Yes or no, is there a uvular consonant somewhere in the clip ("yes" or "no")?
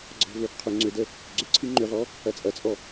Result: yes